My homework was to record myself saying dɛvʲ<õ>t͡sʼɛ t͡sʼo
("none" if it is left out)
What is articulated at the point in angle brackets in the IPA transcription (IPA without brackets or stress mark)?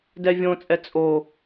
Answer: õ